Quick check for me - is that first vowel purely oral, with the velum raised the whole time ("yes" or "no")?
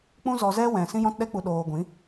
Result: no